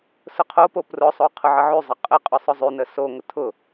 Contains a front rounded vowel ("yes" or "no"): yes